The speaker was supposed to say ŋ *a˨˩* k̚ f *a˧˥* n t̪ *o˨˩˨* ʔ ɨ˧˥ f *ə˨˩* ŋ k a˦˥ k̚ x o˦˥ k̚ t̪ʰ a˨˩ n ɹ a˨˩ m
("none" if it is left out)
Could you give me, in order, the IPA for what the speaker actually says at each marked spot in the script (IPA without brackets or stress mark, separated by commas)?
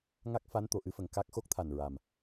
a˦˥, a˧˥, o˨˩˨, ə˨˩